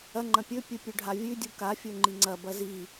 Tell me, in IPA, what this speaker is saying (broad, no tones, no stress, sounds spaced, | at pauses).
ɐ ŋ͡ǃ ɐ̃ pʲ ɵ pʲ ɨ pʲ ʉ ɖʱ a vʲ ʉ dʲ u k a fʲ ɵ ŋ͡ǃ i ŋ͡ǀ ɐ b ɐ z i